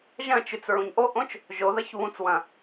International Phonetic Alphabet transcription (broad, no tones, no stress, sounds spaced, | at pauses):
ʒ ɐ̃ t͡ʃ ʉ t͡s ɹ ũ ɲ ʔ o ʔ õ t͡ʃ | ʒ o ð ɐ ç β ũ t͡s w ɐ̃